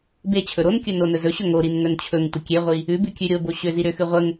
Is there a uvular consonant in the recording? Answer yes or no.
yes